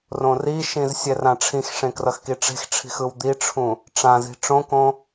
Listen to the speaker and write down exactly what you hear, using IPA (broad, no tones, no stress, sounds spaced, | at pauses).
r õ r i ʃ ĩ z sʲ ɛ r ã ʈ͡ʂʰ ĩ x ʂ ẽ k r ʌ x k i ʈ͡ʂ e̤ x ʈ͡ʂʰ i̤ x ɯ w d̪ i ʈ͡ʂʰ ũ | ʈ͡ʂ ã z i̤ ʈ͡ʂ õ k õ